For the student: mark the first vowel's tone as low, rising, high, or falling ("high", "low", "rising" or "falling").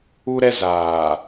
high